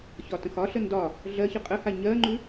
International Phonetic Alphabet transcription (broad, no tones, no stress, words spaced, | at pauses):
çɒtə̃xɒɬə ndɒ | ɮɜçə qʼəha ɲɜŋ͡ǃʉ